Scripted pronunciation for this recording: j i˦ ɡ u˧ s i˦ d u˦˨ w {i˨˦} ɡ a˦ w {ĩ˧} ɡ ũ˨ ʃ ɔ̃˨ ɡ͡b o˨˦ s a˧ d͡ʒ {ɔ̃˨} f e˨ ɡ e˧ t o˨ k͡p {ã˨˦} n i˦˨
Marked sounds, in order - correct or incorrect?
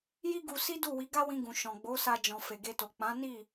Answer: correct, correct, correct, correct

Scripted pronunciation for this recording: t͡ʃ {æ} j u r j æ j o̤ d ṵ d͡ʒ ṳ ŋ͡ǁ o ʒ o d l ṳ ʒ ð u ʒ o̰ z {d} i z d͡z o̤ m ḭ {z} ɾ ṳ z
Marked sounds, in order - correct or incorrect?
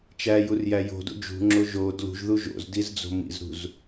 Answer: correct, correct, correct

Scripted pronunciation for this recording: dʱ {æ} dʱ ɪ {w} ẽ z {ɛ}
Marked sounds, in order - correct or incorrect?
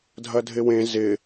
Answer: incorrect, correct, incorrect

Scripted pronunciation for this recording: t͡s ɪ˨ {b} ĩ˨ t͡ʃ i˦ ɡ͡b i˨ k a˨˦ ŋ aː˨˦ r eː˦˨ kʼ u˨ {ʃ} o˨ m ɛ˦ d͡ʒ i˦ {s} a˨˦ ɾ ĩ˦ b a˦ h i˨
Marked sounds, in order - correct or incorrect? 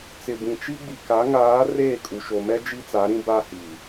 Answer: correct, correct, incorrect

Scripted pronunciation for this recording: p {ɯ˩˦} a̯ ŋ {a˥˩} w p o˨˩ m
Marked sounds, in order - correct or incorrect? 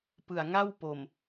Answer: incorrect, correct

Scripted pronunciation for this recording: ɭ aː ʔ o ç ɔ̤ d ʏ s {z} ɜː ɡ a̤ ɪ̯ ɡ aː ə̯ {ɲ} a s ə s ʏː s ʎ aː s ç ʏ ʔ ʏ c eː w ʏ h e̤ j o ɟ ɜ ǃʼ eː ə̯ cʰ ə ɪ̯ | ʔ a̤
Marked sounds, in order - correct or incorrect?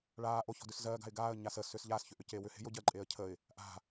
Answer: correct, correct

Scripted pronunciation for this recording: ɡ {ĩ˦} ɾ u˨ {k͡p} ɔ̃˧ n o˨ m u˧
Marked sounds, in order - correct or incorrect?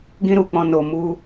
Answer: incorrect, correct

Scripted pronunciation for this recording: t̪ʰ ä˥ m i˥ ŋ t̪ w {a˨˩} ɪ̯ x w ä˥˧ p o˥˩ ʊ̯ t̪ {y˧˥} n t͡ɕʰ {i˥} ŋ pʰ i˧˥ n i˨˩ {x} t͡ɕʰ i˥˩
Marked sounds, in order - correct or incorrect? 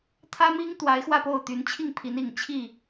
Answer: incorrect, correct, incorrect, incorrect

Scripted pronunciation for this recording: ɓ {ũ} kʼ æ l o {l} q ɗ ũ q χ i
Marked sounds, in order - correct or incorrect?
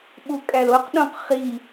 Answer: incorrect, incorrect

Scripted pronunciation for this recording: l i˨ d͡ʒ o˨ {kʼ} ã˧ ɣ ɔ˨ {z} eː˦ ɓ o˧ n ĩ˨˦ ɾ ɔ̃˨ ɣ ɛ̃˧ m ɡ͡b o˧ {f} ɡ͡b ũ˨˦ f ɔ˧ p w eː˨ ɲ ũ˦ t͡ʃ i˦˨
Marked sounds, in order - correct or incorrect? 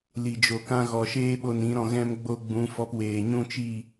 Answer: incorrect, incorrect, incorrect

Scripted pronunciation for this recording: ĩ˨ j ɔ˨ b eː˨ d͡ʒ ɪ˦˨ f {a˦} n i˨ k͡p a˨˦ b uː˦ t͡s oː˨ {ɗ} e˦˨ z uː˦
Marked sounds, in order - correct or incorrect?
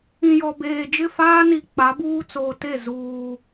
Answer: incorrect, incorrect

